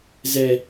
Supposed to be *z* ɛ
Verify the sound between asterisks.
correct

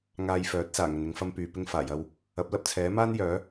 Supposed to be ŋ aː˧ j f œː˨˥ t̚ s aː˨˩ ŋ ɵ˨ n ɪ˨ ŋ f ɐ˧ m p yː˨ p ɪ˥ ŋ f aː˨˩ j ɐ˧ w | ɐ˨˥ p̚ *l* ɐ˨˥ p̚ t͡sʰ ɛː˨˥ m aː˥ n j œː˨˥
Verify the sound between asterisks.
correct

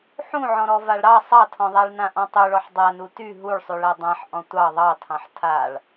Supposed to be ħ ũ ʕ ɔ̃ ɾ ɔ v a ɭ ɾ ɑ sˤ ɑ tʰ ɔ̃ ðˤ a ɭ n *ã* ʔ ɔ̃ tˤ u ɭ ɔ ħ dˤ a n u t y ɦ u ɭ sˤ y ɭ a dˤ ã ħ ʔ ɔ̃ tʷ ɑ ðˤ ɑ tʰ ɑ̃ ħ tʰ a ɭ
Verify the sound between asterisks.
correct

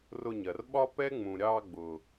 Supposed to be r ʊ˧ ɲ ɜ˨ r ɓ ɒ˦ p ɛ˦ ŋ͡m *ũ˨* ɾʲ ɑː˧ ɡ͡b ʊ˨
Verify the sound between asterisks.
correct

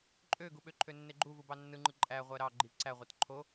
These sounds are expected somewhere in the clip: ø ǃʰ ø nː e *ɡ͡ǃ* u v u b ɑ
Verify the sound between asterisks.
correct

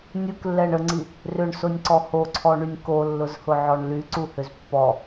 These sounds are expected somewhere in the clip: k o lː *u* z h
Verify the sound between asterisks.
incorrect: ʊ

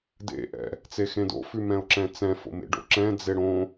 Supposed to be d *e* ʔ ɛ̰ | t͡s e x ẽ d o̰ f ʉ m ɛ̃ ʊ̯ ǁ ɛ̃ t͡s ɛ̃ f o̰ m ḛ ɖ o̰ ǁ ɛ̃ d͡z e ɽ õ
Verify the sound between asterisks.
incorrect: ḛ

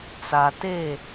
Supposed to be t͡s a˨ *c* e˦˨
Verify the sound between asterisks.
incorrect: t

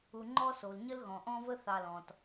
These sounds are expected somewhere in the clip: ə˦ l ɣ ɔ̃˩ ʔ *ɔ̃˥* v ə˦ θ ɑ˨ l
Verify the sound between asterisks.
incorrect: ɔ̃˦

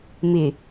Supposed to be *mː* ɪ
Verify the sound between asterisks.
incorrect: m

